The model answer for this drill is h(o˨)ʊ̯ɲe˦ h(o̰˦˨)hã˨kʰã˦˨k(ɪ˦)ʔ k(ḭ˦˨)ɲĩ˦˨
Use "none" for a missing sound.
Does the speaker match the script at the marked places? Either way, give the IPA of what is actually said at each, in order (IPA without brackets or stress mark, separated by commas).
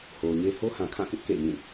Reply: o˨, o˦, ɪ˦, ḛ˦˨